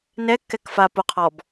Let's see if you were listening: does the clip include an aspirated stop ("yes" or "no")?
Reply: yes